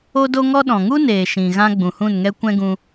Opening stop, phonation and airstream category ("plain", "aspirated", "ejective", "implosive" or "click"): plain